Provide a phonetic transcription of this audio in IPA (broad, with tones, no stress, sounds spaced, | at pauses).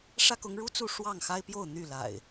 ʂ ä˦ k ʊ˨˦ ŋ ɻ u˦ t͡s u˥˨ ʂ w ɑ˥˨ ŋ x a˦ ɪ̯ p j o˥˨ ʊ̯ n̪ y˥˨ l a̰˨˩ ɪ̯